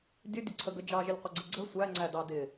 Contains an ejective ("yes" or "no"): no